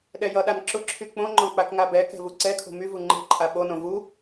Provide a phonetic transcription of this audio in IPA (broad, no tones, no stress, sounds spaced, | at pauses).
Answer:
ɗ ɛ j ʌ ɗ a n ǁ ʊ ǁʰ y k͡p õ ŋ͡ǃ ɔ̃ k͡p a k ŋ a b ɛ k ɛ̤ v u ǀ ɛ kʰ o̤ m y v u ŋ͡ǃ ɛ̤ ǃʼ a ɓ o n õ v u